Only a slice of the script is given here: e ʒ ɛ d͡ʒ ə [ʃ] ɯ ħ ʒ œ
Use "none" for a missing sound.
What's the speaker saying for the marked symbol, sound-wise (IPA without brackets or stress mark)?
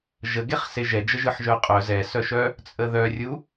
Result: ʒ